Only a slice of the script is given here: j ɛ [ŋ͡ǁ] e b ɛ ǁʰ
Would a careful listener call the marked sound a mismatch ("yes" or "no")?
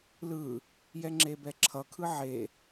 no